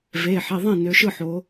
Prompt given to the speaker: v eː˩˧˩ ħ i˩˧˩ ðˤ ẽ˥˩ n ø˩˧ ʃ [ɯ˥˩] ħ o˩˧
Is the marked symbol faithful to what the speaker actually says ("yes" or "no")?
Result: yes